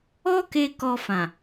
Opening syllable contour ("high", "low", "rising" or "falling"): high